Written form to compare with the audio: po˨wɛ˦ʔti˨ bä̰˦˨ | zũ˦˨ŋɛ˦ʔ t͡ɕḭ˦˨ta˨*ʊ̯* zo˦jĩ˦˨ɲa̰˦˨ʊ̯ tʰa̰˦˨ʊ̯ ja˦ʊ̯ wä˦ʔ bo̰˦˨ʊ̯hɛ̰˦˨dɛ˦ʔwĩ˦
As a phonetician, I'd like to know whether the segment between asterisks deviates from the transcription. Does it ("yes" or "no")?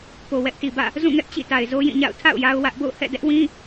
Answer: yes